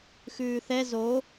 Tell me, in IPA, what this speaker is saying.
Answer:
xʉːθɛ zo

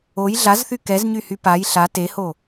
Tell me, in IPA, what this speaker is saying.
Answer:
oj ɮazθy kɛzɲyhy paj ɬa teho

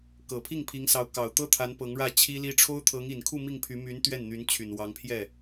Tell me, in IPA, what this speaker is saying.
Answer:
kɤ˨˩pʰi˥˩ŋpʰi˧˥ŋsɑ˧˥ʊ̯ kɑ˨˩ʊ̯t̪ɤ˥t̪ʰa˧˥n pɤ˧˥ŋɻä˥˩ t͡ɕʰi˥li˥ ʈ͡ʂʰo˥ʊ̯t̪ʰɤ˧˥ŋi˨˩nkʰu˥˧ mi˥˩ŋpʰy˧˥my˧˥n t̪ɥɛ˥˩nn̪y˧˥nt͡ɕʰy˨˩nwɑ˧˥ŋ pʰjɛ˥˩

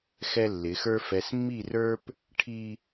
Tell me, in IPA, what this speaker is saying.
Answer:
xɛ˦lːɪ˨˦xə˞˦ fɛ˨smːi˦˨rə˞˦p | ʈʰi˦

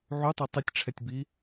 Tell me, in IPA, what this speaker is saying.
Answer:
ʕutˤe tˤitʲʈ͡ʂʰɛtʲbi

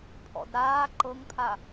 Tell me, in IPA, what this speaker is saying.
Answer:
pʰɔ̰dɾaː ǃɤŋpʰa

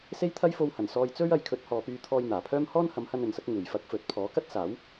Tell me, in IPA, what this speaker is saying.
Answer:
se˥jt̪ʰɐ˥jfo˧whɐ˨˩n sɔː˧jt͡sɵ˥ɥ ɐ˨˧jkʰɵ˨˥t̚hɔː˨pyː˧ t̪ʰɔː˧jn̪aː˨˩pʰœː˥m hɔː˥nhɐ˨˧mhɐ˧n ɵ˨nsɐ˥k̚ ŋuː˨˩jfɐ˧k̚fɵ˨t̚ pʰɔː˨˥kɐ˥t̚saː˨˥w

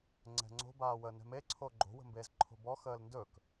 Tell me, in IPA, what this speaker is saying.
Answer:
ŋ͡ǀɛ̤ŋ͡ǀo̤baːwə nɛ̤meǀʰo ɡ͡ǃo̤wə̤mbeːz ǃʰo̤bɔ xəːlndɵk

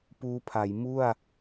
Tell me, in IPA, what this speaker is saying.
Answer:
puː˦˥pʰa˩˦j mu˥˩a̯

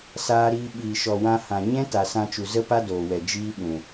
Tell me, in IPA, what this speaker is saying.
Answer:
saː˧ɾiː˧ ɓiː˨ʃɔ˨wã˧hã˨ ɲɛ̃˦ta˨ sã˧t͡ʃu˨ zə˦ pa˦doː˨wɛ˨ d͡ʒiː˦ɓũ˨

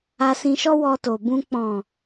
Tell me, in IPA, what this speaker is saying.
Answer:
a˧sĩ˧ʃɔ˦ wɔ˧to˨bũ˧ k͡pɔ̃˨

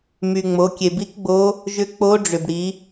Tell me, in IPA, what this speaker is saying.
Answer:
my˩ŋ͡mo˩˧ kʲe˩bi˧˥kɡ͡bo˧˥ | ʒʏ˧˥k͡po˧˥ɖ͡ʐʏ˩b ɽi˩˧

